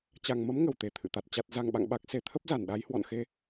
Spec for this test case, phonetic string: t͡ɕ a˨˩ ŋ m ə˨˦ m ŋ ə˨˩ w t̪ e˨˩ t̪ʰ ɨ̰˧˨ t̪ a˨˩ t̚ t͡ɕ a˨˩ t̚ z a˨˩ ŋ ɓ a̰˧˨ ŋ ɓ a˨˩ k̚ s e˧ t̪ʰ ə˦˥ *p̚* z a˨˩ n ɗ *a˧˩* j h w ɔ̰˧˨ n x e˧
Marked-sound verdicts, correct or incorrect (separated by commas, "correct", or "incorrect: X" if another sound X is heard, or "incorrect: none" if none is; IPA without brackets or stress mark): correct, incorrect: a˨˦